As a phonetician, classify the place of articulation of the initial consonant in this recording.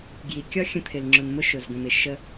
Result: velar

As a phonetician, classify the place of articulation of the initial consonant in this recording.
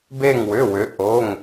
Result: labial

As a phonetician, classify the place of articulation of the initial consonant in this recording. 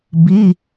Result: labial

